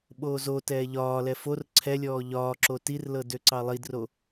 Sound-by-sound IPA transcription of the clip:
ɓ oː z o t ɛː ʎ ɒː l ɛ f o r ǀʰ ɛ lʲ ɔː ʎ ɒː ǁ o t i r l ɤ d ø ǀ ɑ lˠ i d r o

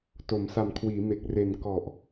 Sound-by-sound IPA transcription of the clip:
t o˩˦ m s a˨˩ m kʰ w iː˩˦ m e˨˩ k̚ r e˨˩ n k ɔ˨˩ ʔ

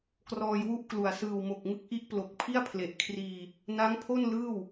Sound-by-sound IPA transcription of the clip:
k r ɔː˧ j w u˥˩ ʔ k l u˨˩ a̯ s ɯː˨˩ w m o˨˩ k̚ ŋ ɯ˦˥ k̚ ʔ i˦˥ ʔ p l o˨˩ k̚ pʰ i˥˩ a̯ pʰ l e˨˩ ʔ kʰ r iː˧ | n a˦˥ ŋ pʰ o˥˩ n l ɯː˥˩ w

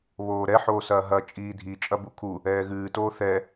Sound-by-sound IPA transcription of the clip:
β oː ɾ ɛ ħ oː s ɐː ɦ ɐ t͡ʃʼ iː dʱ i t͡ʃʼ ɐ b u kʰ u | ɛː ɣ ɨː t oː θ ɛ

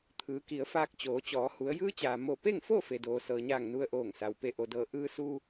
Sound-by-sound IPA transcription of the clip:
t̪ʰ ɯː˩˧ k i˩˧ ə̯ f aː˧ k̚ t͡ɕ oː˩˧ t͡ɕ ɔː˩˧ h u˩˧ ə̯ j ɯː˧˥ t͡ɕ aː˩ m o˧˩ p e˥˨ ŋ f o˥˨ f e˩ d oː˩ s ɤː˩ ɲ aː˧˩ ŋ n u˧ ə̯ ʔ oː˧˩ ŋ s a˩ w p e˧˩ ʔ o˩ d ɤː˧˩ ʔ ɯː˧ s u˧

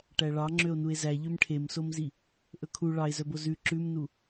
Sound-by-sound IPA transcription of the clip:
ʈ æ ɭ ɑ ŋ͡ǁ ø o̯ n u e̯ z æ ʎ ø m ʈʰ e m s o m z i | ʔ ɵ kʰ u ɭ ɑ e̯ z œ b o z ʉ ǁ ʉ m n u

